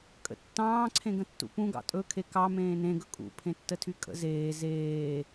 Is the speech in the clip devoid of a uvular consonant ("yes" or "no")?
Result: yes